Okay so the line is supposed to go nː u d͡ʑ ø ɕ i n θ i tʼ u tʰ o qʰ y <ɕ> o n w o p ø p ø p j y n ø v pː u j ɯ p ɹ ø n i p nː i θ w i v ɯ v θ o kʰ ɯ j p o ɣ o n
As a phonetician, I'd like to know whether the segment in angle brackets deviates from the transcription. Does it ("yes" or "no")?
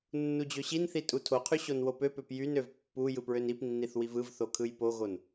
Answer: no